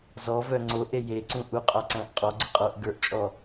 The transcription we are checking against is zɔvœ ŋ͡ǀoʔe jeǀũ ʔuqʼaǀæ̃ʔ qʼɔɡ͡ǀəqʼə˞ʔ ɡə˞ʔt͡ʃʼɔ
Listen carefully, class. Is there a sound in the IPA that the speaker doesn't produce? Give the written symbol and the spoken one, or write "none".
none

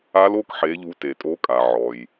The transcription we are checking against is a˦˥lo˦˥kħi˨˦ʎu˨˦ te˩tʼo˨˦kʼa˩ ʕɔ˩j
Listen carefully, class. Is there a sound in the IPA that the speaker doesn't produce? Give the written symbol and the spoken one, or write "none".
i˨˦ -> e˨˦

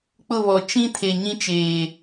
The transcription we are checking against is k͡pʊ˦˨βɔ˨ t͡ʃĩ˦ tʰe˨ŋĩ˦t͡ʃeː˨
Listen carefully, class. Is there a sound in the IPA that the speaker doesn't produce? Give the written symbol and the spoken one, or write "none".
ŋ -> ɲ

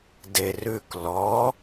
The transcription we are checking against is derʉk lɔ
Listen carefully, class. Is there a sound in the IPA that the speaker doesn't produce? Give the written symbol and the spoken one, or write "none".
none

